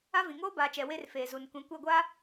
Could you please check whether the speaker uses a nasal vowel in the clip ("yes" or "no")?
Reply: yes